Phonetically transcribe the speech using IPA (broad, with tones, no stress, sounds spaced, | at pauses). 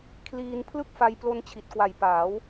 kʰ l iː˧ n pʰ l ɯ˥˩ k̚ f a˧ j p l o˦˥ n t͡ɕʰ i˨˩ t̚ k w a˨˩ j p aː˩˦ w